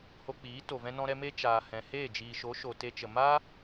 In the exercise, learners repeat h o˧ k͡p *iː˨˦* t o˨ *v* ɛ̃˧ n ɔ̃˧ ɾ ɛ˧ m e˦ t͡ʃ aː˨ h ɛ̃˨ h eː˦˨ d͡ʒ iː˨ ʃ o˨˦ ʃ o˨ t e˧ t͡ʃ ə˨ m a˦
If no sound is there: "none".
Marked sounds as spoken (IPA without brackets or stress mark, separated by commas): iː˨˦, v